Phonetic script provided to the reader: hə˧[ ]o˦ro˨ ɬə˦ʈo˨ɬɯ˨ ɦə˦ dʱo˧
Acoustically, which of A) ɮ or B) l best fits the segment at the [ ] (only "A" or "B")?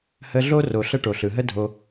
A